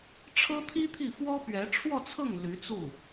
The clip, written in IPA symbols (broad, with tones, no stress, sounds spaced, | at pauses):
ʈ͡ʂʰ ɤ˥ t̪ʰ i˥ t̪ʰ i˥˩ f w ɔ˥ p ɥ ɛ˧˥ ʈ͡ʂʰ w ɔ˥˧ t͡sʰ ɤ˥˩ ŋ l y˧˥ t͡s u˥˩